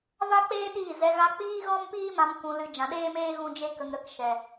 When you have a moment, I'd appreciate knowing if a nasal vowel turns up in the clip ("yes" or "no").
yes